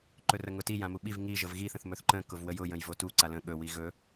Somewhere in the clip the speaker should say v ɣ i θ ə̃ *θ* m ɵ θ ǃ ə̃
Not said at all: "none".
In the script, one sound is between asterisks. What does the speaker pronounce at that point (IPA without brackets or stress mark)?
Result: θ